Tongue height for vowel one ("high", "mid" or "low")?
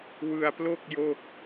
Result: high